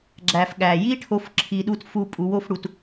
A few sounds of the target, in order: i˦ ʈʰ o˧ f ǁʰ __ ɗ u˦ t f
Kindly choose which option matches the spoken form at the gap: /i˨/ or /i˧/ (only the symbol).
i˧